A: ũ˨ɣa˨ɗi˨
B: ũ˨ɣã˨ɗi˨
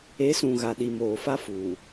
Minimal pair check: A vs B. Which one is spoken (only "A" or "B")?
A